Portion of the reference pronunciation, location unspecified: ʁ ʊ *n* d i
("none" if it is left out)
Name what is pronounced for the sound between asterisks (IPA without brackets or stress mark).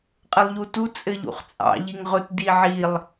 t